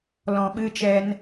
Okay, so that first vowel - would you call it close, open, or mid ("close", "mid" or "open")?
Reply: mid